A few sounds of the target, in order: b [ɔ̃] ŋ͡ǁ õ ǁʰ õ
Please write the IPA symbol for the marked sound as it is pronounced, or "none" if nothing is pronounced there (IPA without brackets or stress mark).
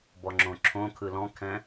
ɔ